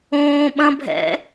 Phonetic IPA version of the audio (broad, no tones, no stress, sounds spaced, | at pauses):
õː ɓ ɐ̃ bʱ ɛ̰